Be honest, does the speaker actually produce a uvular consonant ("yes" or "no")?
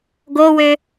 no